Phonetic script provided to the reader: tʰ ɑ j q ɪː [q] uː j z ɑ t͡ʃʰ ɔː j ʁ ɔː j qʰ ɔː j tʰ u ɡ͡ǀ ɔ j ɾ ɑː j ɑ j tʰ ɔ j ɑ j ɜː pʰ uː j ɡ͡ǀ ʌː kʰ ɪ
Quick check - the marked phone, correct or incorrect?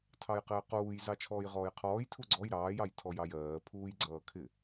correct